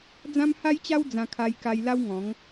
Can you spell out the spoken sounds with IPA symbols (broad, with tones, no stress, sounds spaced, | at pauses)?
d͡z ã˦ m h a˦ j t͡ɕ a˦ w d͡z ã˧ kʰ a˧ j k a˧ j l a˦ w ŋ ɔ̃˨˦ ŋ